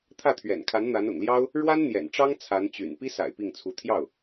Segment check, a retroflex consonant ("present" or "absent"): present